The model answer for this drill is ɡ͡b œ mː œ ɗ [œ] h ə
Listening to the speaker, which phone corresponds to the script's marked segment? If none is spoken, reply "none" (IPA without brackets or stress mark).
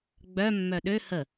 ø